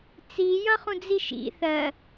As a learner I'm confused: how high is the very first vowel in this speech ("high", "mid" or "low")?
high